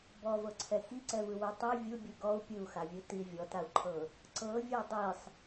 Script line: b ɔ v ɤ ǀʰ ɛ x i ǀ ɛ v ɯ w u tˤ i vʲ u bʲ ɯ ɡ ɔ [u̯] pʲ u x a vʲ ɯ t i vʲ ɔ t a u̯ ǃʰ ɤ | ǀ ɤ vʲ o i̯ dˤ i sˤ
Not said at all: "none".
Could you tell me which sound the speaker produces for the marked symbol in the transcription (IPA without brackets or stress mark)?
u̯